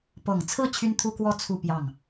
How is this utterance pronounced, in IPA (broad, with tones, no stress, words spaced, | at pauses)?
pɤ˨˩ŋt͡sʰɹ̩˥˩ t͡ɕʰy˥nt̪ʰu˥kwɔ˥ t͡sʰu˥˧pjɑ˥˩ŋ